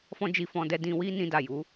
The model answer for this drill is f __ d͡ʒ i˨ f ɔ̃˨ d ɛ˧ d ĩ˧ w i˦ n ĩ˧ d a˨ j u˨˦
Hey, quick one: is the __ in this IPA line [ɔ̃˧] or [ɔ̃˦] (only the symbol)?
ɔ̃˧